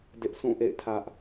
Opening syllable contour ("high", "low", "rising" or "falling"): high